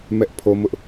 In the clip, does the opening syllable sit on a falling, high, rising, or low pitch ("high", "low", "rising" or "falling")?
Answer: high